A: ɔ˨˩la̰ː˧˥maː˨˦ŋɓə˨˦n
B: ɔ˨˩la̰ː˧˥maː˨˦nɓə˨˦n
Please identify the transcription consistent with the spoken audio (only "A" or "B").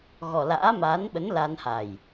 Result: B